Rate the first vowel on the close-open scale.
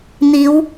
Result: close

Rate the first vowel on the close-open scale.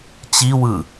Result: close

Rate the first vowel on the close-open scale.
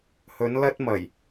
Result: mid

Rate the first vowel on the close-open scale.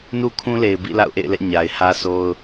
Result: close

